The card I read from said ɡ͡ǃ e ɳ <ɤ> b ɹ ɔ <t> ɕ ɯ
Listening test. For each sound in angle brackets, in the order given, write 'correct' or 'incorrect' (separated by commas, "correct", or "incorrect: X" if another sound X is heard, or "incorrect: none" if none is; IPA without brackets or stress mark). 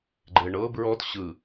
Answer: correct, correct